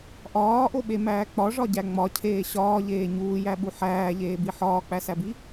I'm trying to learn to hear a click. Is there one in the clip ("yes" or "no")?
no